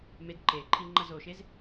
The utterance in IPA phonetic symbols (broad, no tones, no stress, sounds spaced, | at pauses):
m e d ǃ e ǃʰ i ŋ͡ǃ ʌ z o ʃ e z